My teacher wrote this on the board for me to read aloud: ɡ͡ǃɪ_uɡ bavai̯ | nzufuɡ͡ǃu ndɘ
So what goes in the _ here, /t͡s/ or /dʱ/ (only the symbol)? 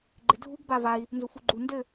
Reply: dʱ